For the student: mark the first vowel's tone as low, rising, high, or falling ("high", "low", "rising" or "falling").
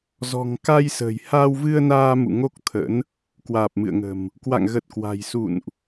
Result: low